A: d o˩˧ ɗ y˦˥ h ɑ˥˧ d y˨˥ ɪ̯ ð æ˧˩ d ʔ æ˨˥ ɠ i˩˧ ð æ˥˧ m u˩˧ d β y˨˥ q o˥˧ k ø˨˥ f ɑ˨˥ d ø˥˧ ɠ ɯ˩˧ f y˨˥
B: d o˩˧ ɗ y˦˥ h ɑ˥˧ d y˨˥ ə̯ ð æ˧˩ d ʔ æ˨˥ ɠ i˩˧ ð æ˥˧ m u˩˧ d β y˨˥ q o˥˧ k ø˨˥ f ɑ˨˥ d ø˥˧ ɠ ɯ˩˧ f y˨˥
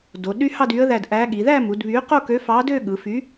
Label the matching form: B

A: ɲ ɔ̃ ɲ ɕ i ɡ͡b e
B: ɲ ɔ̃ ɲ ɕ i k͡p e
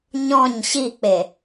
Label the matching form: B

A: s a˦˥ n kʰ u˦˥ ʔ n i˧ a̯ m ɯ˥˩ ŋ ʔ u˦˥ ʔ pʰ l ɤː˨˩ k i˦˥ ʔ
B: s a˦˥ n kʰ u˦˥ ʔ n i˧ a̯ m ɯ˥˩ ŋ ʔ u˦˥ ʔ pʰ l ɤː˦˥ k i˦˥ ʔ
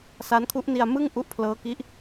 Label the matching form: B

